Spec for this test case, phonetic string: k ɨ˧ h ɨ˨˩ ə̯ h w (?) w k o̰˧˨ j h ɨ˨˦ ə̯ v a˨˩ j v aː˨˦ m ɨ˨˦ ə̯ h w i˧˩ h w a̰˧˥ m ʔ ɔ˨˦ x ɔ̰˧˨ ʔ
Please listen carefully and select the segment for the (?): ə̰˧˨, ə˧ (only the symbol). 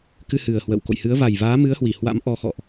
ə̰˧˨